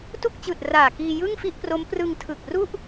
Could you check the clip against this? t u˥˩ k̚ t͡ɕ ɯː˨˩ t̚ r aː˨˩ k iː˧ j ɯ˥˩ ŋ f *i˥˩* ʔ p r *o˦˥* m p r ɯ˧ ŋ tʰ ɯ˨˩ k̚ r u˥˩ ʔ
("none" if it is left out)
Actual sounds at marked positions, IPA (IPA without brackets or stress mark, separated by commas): i˥˩, o˦˥